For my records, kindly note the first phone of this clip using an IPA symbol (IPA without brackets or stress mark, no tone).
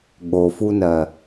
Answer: ɠ